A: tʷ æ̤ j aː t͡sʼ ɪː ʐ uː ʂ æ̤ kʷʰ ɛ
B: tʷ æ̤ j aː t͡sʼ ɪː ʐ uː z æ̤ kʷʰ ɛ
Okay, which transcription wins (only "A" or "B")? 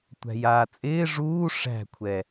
A